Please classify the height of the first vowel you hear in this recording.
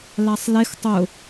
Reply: low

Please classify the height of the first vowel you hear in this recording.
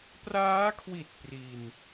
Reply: low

